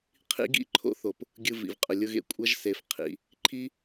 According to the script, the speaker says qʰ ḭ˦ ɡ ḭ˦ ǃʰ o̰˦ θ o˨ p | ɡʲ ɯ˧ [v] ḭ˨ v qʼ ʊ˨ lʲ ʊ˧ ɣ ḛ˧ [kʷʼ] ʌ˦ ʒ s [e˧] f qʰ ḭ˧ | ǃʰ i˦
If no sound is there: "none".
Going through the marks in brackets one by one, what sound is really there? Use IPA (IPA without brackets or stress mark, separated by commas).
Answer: v, kʷʼ, e˧